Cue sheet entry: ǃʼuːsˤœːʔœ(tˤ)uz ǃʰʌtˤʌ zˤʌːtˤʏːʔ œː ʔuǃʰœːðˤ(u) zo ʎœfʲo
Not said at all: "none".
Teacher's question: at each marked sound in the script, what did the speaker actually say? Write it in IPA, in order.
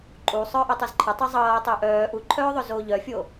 tˤ, ʏ

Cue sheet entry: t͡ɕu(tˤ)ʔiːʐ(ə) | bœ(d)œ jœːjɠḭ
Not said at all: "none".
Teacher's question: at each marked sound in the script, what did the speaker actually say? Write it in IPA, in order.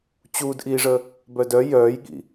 d, ə, d

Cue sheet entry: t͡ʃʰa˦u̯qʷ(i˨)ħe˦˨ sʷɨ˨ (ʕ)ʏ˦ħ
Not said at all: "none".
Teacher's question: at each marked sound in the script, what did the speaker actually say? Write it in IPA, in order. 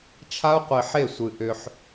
i˨, ʔ

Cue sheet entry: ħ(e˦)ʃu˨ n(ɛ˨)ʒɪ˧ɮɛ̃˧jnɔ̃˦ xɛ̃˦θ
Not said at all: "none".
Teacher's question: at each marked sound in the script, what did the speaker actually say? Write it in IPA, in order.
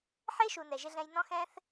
e˦, ɛ˨

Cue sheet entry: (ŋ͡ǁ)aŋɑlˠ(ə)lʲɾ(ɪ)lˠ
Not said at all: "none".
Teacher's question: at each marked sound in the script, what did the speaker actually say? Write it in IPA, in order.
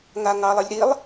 ŋ, ə, i

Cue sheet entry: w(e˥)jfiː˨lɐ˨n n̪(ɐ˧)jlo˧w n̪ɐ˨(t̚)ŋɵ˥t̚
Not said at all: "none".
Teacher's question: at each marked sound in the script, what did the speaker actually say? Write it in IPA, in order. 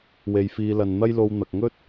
e˨, ɐ˥, k̚

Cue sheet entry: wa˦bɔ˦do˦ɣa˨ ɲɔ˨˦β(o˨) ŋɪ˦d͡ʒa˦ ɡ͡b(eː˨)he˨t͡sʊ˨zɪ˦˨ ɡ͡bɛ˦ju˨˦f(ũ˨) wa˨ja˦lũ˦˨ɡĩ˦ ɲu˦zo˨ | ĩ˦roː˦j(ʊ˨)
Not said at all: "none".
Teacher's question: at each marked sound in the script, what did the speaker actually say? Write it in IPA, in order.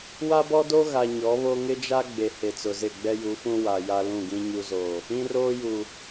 o˦, e˨, ũ˦, u˨

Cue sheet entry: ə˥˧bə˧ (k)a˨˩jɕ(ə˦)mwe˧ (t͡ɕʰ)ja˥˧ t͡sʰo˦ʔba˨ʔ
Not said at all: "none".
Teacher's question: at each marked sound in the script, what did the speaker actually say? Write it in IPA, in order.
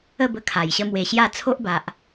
kʰ, ə˦, ɕ

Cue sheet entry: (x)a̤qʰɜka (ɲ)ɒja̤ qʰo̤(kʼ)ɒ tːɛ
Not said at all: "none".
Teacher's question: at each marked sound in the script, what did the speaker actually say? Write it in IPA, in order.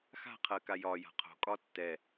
x, j, kʼ

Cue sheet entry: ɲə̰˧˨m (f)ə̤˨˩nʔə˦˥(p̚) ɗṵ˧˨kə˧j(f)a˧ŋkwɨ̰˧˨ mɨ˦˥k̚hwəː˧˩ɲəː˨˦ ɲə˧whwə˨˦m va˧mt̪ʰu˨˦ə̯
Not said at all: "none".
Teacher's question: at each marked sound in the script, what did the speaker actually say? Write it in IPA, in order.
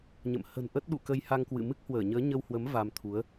h, t̚, h

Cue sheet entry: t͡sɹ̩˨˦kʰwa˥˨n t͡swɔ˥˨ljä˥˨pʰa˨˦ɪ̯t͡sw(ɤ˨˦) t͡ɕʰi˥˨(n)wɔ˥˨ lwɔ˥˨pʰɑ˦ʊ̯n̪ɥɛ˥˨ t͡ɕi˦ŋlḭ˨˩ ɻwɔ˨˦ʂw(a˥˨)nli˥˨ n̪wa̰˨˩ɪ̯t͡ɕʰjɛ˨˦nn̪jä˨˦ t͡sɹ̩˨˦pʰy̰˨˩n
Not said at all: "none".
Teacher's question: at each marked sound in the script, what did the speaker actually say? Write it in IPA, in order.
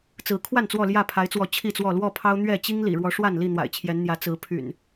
ɔ˨˦, t͡s, a˥˨

